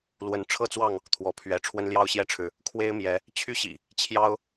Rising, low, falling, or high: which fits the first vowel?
rising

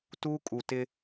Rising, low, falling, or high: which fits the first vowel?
high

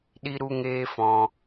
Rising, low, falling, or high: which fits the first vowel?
high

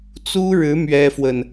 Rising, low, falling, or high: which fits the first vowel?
high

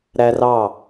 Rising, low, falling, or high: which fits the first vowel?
high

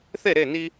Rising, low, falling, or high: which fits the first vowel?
falling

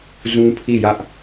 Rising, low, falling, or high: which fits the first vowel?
high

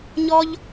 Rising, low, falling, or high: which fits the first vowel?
high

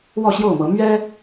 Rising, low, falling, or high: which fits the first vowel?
falling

